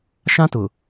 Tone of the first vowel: high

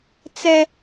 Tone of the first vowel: high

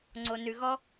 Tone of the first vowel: low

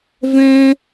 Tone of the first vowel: high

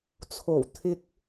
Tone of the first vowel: low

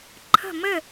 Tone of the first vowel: falling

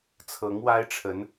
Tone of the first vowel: rising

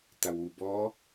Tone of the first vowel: low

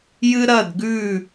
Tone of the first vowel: high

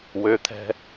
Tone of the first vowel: rising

